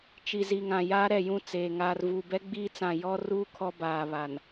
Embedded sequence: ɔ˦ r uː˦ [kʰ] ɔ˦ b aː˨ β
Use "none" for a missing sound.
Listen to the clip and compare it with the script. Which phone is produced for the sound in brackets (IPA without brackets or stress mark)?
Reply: kʰ